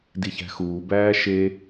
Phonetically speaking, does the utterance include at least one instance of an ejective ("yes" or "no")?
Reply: no